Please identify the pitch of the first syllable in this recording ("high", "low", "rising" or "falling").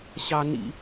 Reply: high